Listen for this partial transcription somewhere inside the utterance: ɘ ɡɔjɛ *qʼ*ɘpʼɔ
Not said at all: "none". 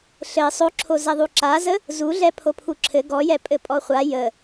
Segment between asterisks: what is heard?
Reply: pʼ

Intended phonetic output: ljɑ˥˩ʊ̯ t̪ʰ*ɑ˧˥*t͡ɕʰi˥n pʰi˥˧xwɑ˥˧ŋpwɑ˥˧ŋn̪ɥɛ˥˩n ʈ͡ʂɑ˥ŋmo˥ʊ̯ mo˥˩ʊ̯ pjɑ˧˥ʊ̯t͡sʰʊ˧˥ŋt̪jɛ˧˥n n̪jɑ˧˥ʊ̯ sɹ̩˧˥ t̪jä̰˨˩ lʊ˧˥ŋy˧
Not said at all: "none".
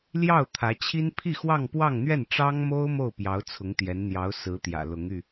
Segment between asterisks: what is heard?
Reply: ä˧˥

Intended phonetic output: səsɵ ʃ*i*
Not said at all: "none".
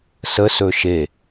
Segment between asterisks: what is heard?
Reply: e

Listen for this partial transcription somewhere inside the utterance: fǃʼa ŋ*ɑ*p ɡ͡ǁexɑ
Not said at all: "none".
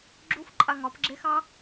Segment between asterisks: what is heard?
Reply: ɒ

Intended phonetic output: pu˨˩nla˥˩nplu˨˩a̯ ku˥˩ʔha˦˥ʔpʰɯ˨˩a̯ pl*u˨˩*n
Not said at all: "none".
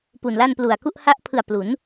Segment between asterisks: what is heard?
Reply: u˩˦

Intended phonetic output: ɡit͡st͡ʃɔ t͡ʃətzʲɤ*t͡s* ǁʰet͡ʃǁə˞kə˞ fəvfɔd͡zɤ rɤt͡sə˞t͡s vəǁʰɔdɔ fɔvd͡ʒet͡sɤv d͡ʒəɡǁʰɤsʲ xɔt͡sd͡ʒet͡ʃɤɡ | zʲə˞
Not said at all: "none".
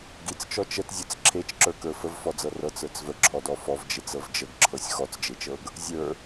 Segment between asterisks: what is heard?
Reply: t͡s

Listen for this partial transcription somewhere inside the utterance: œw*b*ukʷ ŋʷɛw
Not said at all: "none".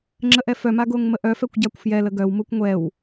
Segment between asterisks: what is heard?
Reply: m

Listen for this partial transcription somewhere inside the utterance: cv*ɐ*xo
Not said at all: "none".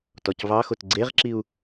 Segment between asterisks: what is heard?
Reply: ɑ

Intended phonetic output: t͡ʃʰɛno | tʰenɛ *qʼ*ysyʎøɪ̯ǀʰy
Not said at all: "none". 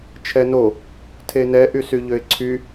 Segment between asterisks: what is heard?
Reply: ʔ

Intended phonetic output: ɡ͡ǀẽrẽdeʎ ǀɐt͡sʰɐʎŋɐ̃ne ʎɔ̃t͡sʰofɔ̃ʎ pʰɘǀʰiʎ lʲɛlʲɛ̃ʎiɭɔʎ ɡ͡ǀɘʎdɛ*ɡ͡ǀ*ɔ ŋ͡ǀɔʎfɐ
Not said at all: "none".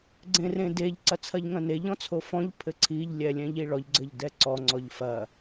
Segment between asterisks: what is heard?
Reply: ǀ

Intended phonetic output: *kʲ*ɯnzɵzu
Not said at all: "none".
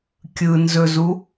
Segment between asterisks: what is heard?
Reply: kʲ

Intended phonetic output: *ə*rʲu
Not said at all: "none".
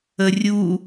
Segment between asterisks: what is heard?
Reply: ə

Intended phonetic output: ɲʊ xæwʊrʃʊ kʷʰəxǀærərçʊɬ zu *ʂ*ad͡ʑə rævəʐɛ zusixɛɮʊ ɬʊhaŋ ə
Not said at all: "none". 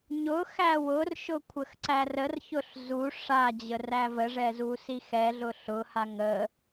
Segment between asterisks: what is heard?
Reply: ʂ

